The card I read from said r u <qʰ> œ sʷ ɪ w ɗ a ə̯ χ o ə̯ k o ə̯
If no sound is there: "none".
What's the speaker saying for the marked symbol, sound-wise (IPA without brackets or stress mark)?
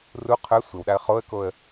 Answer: qʰ